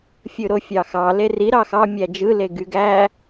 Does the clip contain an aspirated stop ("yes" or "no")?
no